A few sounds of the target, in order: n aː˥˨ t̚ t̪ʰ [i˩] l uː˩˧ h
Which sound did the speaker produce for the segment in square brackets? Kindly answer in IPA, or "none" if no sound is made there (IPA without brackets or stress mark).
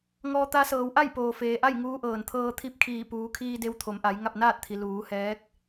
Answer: i˩